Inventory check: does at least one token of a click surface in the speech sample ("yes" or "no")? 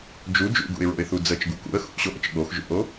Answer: no